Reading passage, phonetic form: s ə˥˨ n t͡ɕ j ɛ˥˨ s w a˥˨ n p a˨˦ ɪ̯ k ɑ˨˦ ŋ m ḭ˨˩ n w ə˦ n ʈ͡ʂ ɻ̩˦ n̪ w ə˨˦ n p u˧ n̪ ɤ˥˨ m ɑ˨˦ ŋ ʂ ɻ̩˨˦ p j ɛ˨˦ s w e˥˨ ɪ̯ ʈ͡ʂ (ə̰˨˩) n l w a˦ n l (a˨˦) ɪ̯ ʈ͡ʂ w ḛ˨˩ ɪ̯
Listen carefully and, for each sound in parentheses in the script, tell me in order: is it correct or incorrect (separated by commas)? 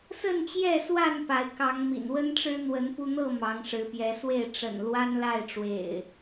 correct, incorrect